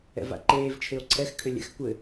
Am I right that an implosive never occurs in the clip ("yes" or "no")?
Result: yes